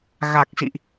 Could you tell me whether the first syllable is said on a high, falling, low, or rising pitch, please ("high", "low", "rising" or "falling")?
low